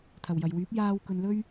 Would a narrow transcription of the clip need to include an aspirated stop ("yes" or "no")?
yes